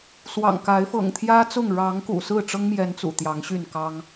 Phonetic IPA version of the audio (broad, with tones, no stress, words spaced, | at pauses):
swɑ̰˨˩ŋka˨˦ɪ̯ fɤ̰˨˩ŋt̪ʰjä˦t͡sʊ˥˨ŋ ɻɑ˨˦ŋ kṵ˨˩sɹ̩˥˨ʈ͡ʂɤ˦ŋmjɛ˨˦n t͡sṵ˨˩t̪jɑ˨˦ŋɕy˥˨nkɑ˦ŋ